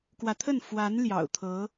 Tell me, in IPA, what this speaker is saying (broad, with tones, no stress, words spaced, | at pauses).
kwä˧˥t̪ʰə˥˩n fwa˧˥n ljɑ̰˨˩ʊ̯t̪ʰɤ˧˥